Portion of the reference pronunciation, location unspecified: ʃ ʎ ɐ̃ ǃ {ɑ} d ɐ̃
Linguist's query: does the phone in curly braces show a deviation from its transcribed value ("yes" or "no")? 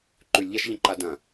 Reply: yes